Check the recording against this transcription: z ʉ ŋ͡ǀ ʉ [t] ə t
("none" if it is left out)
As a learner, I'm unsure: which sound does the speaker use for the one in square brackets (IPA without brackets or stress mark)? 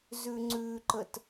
ǃ